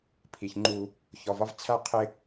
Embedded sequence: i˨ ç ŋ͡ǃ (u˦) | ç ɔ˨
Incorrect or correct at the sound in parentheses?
correct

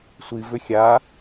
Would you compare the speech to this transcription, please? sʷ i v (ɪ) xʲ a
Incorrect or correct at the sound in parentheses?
incorrect: ʏ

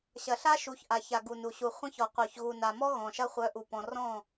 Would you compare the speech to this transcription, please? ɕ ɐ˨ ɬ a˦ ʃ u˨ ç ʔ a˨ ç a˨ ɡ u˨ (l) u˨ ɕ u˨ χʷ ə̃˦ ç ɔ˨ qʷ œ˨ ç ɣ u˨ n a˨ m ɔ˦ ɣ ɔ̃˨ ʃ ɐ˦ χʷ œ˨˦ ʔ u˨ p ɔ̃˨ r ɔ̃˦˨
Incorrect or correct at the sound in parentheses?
incorrect: n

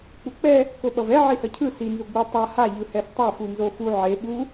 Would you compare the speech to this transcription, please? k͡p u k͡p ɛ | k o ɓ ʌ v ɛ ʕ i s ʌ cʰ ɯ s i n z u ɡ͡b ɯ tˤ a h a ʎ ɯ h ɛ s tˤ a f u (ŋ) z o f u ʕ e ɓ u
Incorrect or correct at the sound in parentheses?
incorrect: n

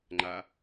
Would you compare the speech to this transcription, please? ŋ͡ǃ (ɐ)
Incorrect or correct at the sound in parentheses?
incorrect: a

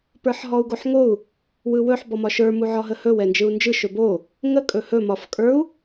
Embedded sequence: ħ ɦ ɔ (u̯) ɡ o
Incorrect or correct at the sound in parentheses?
correct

